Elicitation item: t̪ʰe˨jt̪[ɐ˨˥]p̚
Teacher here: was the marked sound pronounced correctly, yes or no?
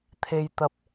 no